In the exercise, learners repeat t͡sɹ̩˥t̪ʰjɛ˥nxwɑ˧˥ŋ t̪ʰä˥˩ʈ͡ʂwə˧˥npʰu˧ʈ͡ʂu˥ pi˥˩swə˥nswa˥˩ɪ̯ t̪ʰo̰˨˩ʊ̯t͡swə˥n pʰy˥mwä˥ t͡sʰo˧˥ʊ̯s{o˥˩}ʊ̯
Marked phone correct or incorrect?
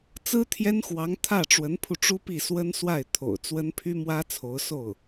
correct